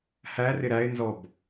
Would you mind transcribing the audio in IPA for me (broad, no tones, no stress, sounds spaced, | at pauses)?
h æ r ɪ ɾ æ ɪ̯ n z ɔ b